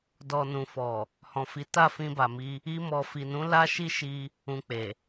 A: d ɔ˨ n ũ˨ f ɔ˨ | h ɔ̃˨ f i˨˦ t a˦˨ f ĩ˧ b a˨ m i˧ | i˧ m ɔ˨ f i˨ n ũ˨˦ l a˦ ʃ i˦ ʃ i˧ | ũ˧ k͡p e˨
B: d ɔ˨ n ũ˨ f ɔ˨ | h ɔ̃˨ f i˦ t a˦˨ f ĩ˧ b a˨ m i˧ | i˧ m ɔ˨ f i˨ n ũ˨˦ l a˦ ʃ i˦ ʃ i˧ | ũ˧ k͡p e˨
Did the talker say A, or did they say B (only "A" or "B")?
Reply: A